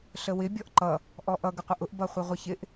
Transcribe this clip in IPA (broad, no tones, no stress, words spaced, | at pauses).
ɬəwɪ bʲɔʔǃʌ | ʔɔʔʌ ɡɪqʷəʔʊʔ bʌχʷɪʁʷʌçɪʔ